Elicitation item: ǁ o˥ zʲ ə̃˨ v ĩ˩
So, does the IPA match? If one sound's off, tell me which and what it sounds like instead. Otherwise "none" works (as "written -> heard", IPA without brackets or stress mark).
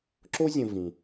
none